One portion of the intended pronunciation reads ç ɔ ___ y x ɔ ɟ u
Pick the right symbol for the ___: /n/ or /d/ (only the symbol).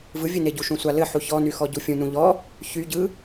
n